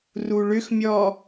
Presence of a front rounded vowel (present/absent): present